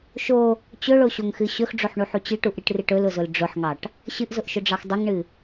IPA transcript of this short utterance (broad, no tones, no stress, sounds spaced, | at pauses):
ʃ o | t͡ɕ ɵ ɭ o ɕ o ŋ x ɨ ɕ ɵ x ɖ͡ʐ o ħ ɳ u ħ u t͡ɕ ɨ ʈ u ʔ ɾ ɨ ʈ r ɨ ʈ ɵ l ʊ z ʊ l ɖ͡ʐ ʊ ħ ŋ ɑ ʈ | ɕ ɨ ʔ z ʊ ʔ ʃ ʊ ɖ͡ʐ ɑ x dˤ ʊ ŋ ɳ ɨ